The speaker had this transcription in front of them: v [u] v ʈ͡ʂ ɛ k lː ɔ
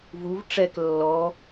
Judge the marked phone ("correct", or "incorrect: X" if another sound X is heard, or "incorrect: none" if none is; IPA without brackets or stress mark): correct